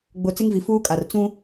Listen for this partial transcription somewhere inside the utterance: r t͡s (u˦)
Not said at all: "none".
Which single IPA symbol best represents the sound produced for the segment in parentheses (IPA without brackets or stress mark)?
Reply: ũ˦